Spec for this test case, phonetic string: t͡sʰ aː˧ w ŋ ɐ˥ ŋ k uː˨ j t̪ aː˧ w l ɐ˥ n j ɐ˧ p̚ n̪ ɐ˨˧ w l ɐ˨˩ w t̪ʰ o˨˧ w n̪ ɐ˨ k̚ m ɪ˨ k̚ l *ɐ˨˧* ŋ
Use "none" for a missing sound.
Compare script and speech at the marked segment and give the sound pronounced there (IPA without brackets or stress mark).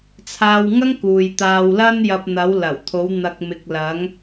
ɐ˨˧